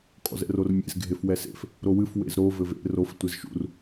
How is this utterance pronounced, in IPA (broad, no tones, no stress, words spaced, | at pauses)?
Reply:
kʼɔ̰zɛ̰rormʲḛz ɡʱefwɛsḛf | ɾowɨf wḛzɾo vɘvḛ rof tʷezʃṵr